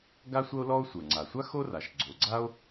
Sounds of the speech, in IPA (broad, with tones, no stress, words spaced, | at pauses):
ɡa˥sʷɐ˥o̯lɔ˥o̯ sʷə˞˩ŋ͡ǀa˩sʷa˥ xo˥ra˩ʃ ɡ͡ǀo˩ɡ͡ǀa˥o̯